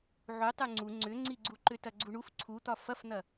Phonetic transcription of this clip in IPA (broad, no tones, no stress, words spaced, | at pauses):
ʕu tˤʉŋ͡ǀu ŋ͡ǀʏŋ͡ǀiɡ͡ǀu ǃʏtɐɡ͡ǀuɳuf ǀʰut̪ɒ fɐfn̪ɐ